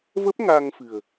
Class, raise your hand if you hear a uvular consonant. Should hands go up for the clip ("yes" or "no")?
no